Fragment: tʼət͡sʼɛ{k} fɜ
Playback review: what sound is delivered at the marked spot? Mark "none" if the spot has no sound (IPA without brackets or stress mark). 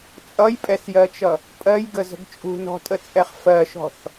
χ